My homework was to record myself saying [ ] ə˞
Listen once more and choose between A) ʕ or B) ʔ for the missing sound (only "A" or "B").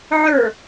A